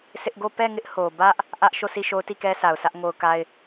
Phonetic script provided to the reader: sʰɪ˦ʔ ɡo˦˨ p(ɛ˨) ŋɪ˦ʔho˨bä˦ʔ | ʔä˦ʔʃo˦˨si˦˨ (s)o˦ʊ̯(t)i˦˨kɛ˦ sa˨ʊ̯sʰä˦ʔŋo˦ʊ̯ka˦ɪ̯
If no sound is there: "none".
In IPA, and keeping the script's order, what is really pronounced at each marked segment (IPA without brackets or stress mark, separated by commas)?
ɛ˦˨, ʃ, t